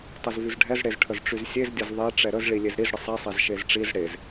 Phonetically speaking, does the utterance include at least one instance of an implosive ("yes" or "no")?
no